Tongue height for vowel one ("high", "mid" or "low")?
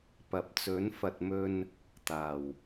low